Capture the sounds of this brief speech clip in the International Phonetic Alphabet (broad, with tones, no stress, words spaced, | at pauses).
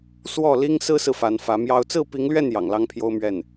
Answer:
swɔ˥˩ li˥ŋsɹ̩˥sɹ̩˨ fa˧˥nfä˧˥mjɑ˥ʊ̯ t͡sɹ̩˥˩pi˧˥ŋlɥɛ˥˩n jɑ̰˨˩ŋlɑ˥ŋpʰjo˥ʊ̯ mɥɛ˥˩n